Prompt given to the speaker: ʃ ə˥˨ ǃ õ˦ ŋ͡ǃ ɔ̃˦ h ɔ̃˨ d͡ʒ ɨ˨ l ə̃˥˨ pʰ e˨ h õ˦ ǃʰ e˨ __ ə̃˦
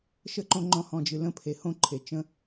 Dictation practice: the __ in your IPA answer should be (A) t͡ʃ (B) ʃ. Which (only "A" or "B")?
A